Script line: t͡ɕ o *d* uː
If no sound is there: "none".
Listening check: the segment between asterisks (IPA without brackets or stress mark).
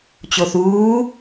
θ